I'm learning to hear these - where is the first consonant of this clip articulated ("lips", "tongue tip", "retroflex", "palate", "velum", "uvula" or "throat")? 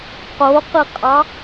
uvula